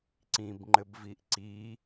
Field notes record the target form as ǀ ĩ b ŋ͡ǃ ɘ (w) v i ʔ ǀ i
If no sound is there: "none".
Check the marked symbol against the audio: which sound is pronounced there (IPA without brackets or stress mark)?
b